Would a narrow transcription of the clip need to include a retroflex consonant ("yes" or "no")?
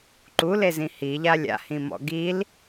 no